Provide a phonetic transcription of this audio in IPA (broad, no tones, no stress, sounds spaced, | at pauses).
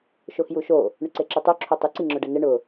ʃ o x j u ʃ o | ɳ ʊ ǀ e ǁ i tˤ o ǁʰ o tˤ ɪ ǀ i ŋ͡ǁ ʊ ɖ ɛ n ɪ ɳ ʊ